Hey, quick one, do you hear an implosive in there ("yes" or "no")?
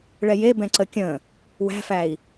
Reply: no